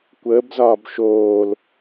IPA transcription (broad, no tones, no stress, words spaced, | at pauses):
kʷəːbzɒːb ʃoːl